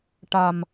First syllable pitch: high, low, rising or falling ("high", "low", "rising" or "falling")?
low